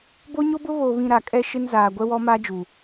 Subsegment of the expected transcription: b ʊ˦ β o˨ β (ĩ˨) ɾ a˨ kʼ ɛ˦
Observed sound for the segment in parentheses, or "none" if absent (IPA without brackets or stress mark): ĩ˨